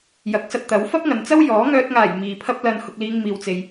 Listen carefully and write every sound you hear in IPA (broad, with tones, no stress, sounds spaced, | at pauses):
j ɐ˨˥ k̚ s ɐ˧ t̚ t̪ ɐ˨˥ w f ɐ˥ p̚ ŋ ɐ˨ n t͡s ɐ˥ w j ɔː˨˥ ŋ œː˧ t̚ ŋ aː˨˩ j m iː˨ pʰ ɐ˥ p̚ l ɐ˧ n h ʊ˨ k̚ l iː˨ ŋ m iː˨ w t͡s e˨ j